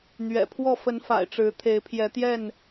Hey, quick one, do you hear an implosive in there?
no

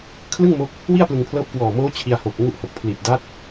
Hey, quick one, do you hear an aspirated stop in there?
yes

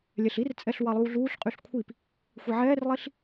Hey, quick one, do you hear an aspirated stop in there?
yes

